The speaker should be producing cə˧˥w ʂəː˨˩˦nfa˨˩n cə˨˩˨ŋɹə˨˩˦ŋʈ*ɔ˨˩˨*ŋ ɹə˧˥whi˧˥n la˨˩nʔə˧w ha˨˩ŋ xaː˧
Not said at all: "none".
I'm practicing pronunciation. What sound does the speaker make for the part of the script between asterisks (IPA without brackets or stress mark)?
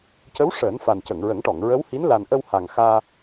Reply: ɔ˨˩˨